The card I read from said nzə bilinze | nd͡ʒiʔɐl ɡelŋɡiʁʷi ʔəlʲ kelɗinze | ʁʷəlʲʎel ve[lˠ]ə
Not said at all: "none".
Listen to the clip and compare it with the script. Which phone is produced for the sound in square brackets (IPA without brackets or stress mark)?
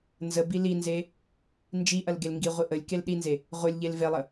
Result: lˠ